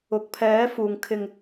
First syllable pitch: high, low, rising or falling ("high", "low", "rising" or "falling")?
low